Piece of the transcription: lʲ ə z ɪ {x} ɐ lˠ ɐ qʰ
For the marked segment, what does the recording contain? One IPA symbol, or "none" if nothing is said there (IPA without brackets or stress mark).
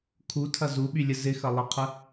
x